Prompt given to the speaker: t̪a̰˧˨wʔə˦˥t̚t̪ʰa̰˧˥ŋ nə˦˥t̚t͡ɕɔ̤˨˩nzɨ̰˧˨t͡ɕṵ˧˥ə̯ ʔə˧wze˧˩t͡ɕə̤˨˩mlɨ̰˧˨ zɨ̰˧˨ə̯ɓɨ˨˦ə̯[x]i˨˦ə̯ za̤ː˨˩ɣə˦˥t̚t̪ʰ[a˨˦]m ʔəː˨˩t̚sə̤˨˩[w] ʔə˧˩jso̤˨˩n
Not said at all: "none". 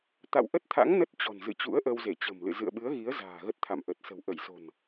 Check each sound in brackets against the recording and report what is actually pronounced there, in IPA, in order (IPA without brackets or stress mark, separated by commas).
ɣ, a̰˧˨, w